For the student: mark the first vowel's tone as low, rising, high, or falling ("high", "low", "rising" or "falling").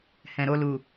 low